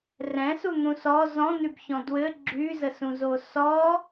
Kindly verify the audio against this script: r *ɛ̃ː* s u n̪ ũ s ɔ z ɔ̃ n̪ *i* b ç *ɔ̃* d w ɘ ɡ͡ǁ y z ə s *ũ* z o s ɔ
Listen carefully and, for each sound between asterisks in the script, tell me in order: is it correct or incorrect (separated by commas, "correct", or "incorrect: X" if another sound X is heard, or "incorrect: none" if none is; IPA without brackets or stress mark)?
incorrect: ɛ̃, incorrect: y, correct, correct